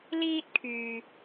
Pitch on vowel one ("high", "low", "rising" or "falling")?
high